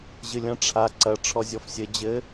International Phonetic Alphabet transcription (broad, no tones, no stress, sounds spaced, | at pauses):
ʑ ɨ lʲ ɐ̃ ʈ͡ʂʰ a ǀ ɐ ʈ͡ʂʰ ɔ zʲ ɔ f sʲ ɘ d͡ʑ ɘ